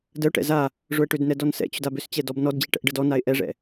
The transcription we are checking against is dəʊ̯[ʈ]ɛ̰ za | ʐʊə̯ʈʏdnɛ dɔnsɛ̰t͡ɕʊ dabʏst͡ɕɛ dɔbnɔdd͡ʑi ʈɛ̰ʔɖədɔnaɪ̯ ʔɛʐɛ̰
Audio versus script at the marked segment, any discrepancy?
no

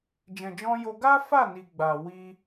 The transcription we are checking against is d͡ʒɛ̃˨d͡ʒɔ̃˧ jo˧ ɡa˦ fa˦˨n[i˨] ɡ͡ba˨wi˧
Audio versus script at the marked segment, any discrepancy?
no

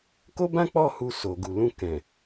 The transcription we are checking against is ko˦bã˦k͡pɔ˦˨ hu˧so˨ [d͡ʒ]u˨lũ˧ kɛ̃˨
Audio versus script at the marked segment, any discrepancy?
yes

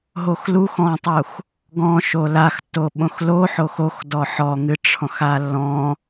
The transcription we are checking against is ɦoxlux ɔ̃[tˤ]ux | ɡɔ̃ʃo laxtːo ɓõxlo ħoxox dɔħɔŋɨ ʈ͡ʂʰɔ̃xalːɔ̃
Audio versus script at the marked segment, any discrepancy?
no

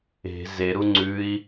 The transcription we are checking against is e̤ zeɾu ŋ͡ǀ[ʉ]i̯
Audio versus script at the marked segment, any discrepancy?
no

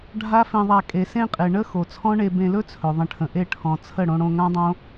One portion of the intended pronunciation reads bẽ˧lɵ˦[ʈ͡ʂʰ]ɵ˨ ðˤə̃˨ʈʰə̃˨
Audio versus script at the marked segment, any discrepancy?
yes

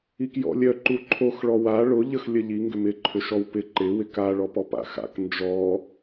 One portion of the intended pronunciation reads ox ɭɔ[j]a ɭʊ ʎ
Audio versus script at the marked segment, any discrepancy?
yes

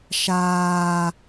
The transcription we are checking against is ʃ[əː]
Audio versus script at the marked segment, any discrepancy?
yes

